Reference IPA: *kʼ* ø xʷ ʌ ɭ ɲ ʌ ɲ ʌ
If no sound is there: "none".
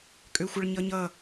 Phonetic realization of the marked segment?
kʼ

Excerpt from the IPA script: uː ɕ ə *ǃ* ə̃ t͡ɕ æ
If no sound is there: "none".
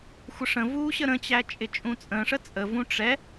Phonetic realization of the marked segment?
ɾ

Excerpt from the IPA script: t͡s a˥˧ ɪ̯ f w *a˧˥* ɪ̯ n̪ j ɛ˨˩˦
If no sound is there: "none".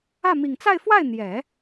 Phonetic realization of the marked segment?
a˥˩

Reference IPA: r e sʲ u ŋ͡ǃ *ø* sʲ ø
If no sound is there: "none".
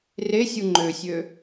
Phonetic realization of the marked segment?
ø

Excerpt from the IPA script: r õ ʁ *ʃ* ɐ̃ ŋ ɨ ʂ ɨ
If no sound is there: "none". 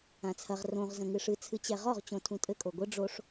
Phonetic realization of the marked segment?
z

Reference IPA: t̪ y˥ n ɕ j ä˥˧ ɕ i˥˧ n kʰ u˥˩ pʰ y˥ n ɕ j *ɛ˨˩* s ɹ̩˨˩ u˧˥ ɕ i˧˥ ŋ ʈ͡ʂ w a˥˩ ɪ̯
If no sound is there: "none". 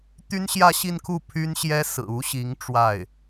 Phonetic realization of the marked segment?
ɛ˥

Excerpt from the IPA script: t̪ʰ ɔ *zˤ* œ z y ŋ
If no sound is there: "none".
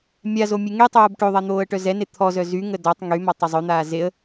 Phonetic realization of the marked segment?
z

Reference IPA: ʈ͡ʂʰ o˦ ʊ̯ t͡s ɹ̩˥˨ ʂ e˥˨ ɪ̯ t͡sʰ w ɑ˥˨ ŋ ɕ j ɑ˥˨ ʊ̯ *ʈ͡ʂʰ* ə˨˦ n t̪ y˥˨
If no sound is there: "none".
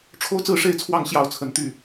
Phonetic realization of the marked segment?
t͡sʰ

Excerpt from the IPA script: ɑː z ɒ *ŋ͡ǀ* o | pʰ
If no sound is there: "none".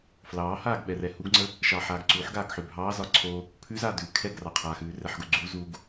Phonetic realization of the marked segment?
ǀʰ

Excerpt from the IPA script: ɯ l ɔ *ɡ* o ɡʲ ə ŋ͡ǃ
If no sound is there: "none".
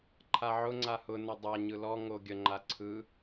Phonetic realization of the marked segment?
ŋ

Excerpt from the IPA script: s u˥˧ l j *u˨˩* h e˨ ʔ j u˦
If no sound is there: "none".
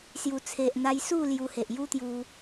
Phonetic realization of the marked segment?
u˧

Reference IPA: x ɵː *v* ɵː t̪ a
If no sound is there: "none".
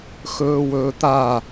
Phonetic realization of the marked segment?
w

